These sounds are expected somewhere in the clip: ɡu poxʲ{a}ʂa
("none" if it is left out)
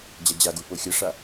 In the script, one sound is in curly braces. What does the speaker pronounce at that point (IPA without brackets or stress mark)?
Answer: ɐ